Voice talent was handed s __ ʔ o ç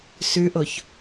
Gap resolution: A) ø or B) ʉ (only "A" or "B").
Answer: B